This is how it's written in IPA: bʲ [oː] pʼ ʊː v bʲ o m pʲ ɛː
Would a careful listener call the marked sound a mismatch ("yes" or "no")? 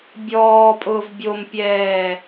yes